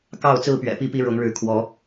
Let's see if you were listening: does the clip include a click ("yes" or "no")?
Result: no